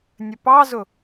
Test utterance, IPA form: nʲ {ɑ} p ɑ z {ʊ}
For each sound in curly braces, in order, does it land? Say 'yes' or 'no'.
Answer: no, yes

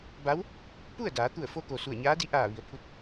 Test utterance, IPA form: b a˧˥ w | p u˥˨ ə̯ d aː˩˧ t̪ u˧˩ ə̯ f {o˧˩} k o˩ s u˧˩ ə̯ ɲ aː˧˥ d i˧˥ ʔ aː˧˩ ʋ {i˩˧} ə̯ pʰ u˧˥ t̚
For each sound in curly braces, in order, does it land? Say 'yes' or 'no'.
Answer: no, yes

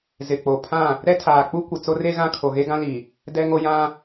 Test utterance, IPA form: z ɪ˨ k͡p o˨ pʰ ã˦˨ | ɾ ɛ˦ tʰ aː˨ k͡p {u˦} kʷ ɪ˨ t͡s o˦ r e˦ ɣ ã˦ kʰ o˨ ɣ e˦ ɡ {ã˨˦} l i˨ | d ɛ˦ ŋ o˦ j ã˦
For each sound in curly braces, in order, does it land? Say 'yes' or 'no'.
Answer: yes, no

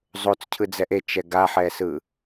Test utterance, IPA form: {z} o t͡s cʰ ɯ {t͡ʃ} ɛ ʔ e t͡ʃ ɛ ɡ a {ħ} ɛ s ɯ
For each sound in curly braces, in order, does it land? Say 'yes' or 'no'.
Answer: no, no, yes

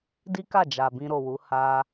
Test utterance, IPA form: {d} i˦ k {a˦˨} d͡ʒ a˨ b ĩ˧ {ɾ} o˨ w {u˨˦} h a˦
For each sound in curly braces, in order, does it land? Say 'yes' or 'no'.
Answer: yes, yes, yes, yes

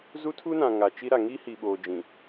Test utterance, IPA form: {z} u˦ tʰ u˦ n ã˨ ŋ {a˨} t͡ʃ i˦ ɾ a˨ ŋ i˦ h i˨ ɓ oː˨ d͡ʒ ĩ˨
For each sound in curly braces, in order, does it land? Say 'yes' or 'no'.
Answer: yes, yes

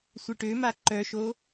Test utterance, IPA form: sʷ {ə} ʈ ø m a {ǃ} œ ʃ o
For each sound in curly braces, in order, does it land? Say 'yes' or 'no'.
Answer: yes, yes

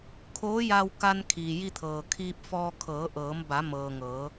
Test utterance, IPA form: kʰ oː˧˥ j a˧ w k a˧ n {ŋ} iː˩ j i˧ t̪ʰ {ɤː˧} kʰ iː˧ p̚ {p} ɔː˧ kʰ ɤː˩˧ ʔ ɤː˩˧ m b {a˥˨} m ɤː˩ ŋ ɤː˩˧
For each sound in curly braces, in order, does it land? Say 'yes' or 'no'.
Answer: no, no, no, no

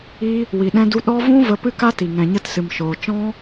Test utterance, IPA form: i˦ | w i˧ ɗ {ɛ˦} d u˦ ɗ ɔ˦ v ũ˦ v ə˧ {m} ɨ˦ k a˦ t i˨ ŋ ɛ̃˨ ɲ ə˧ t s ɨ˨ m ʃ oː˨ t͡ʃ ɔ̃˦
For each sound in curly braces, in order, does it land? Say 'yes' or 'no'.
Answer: no, no

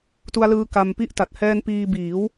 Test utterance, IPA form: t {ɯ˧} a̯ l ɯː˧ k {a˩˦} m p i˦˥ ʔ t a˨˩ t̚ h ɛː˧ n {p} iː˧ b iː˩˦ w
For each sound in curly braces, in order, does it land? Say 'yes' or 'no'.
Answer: no, no, yes

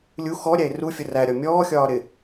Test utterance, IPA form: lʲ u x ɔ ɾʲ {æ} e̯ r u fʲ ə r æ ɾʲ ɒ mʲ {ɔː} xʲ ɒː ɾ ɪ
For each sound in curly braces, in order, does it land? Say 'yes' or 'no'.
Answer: yes, yes

